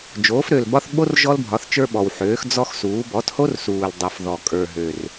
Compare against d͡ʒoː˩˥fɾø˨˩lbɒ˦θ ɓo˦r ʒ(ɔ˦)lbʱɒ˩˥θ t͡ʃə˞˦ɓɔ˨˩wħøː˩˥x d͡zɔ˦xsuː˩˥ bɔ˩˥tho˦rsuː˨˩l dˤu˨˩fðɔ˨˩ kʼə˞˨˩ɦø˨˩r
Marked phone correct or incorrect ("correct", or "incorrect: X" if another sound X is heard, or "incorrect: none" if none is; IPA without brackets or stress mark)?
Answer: correct